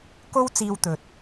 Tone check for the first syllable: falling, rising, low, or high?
high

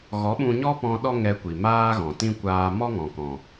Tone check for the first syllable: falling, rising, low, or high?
rising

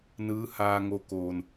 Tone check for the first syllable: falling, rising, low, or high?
rising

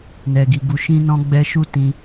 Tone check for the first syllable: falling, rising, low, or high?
low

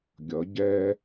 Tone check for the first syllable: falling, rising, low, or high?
rising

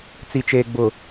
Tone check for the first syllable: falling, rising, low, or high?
low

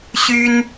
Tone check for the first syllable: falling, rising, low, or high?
high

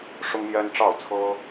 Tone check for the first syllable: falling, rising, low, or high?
high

